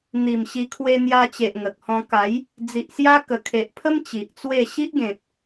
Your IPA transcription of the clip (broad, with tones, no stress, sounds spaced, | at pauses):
n̪ i˨˩ m ɕ i˧ kʰ w e˧ n̪ j a˧ t͡ɕ e˨ ʔ ŋ ə˨ k̚ h ɔ̃˧ k a˨˦ j | d͡z i˨ ʔ s j a˦ k ə˨˩ kʰ e˨ ʔ pʰ ə˦ m t͡ɕ i˨ ʔ t͡s w e˥˧ ɕ i˦ ʔ ɡ ẽ˨ t̚